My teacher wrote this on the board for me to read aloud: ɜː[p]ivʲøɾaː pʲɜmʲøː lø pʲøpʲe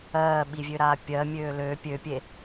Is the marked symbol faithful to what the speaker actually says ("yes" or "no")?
no